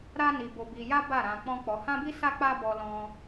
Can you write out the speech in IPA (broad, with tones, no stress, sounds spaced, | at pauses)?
ɾ a˦ n i˧ b o˧ b i˧ j a˦ b a˦˨ ɾ ã˧ k͡p ɔ̃˦ k͡p ɔ˧ h ã˦ b i˦ s a˦ k͡p a˦ b ɔ˧ l ɔ̃˧